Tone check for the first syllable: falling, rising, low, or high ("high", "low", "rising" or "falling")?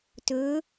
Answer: rising